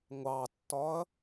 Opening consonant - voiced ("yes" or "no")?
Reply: yes